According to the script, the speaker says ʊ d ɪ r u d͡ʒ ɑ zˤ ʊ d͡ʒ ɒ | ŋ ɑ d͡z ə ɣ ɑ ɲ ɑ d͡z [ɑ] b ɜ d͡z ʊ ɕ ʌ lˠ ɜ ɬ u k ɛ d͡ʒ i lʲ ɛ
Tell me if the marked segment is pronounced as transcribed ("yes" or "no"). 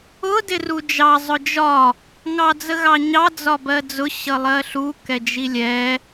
no